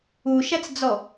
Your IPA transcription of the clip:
u ʃ æ t͡s d͡z ɔ

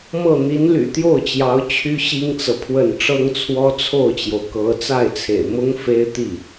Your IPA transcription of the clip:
m ɤ˥˩ n̪ i˧˥ n l y̰˨˩ t̪ j o˥˩ ʊ̯ t͡ɕ j ɑ˧˥ ʊ̯ t͡ɕʰ y˥ ɕ i˥ ŋ t͡s ɤ˨ pʰ w ə˥˩ n ʈ͡ʂ ɤ˥ ŋ t͡sʰ w ɔ˥ t͡sʰ o˥˩ ʊ̯ t͡ɕ j o˩ ʊ̯ k ɤ˧˥ t͡s a˥˩ ɪ̯ t͡sʰ ḛ˨˩ ɪ̯ m ʊ˥ ŋ f e˥ ɪ̯ t̪ i˥˩

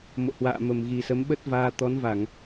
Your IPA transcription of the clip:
m o̰˧˨ h w a̰ː˧˨ m ə˨˩ m ɣ i˨˩ s ə˨˦ m ɓ ə˦˥ t̚ v aː˧ t̪ ɔ˨˦ n v a˧˩˨ ŋ

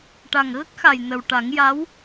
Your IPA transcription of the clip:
ʈ a˨˩ ŋ ɣ ə˦˥ k̚ x a˨˩ j n ə˨˩ w ʈ a˨˩˦ ŋ j a˧˥ w

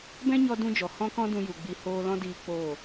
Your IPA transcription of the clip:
b ɛ̃˦ ɲ ɔ˧ d ũ˦ d͡ʒ ɔ˨ h ɔ̃˦ k ɔ̃˦ d ũ˧ j u˨ ɡ͡b i˧ h oː˦ l ɔ̃˦ d iː˧ k͡p oː˦˨

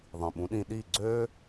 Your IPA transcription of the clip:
ðˤ ĩ˨ ɓ ũ˨˦ ɗ ĩ˧ ɗ iː˦˨ ɡ͡ǀ øː˦

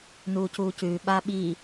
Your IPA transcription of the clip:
n uː c uː c ʉː ɓ aː ɓ i

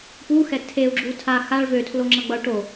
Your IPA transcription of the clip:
p u x ɛ tʰ e u̯ ɡ͡ǁ u tʰ a x a ɭ v ø tʰ l o ŋ͡ǁ ʌ ɡ͡b ʌ u̯ ʈ o

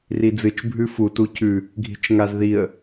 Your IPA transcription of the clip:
r i d͡z ɨ t͡ʃ bʱ ʉ f u t u c ʉ | ɡʱ i̤ t͡ʃ ŋ a z ð i ə̯

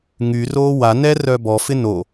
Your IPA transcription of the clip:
ŋ y r oː w a n ɛ r œ b ɔ f ɪ n o

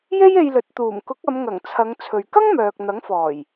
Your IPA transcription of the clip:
j e˥ j e˧ j l ɵ˨ t̚ t̪ uː˨˩ m k ʊ˨˥ k̚ ɐ˨˧ m ŋ ɐ˨˩ ŋ t͡sʰ ɐ˨˧ ŋ t͡sʰ ɵ˨ ɥ k ɐ˥ ŋ m œː˨ k̚ n̪ ɐ˨˥ ŋ f ɔː˨˩ j

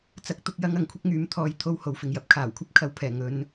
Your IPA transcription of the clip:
t͡s ɐ˥ k̚ t̪ ʊ˥ k̚ j ɐ˥ ŋ ɐ˨˥ ŋ kʷʰ ɪ˥ k̚ ŋ yː˧ m t̪ʰ ɔː˧ j t̪ʰ o˧ w h o˨ w f ɪ˨ ŋ j ɐ˧ p̚ kʰ aː˨˩ w kʷʰ ɐ˥ p̚ kʰ ɐ˨˧ w pʰ ɛː˨˩ ŋ ɵ˨˧ n

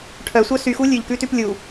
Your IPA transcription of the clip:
ʈʰ œ sʷ œ s y x u lʲ ʉ ʎ k ʉ t ʉ p lʲ u

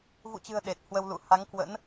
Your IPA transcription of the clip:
v ṵ˧˨ t͡ɕ ɨ̤˨˩ ə̯ ɗ e˨˩ t̚ h w ə˧ w l ṵ˧˨ h a˨˦ ŋ k w ə̰˧˥ n

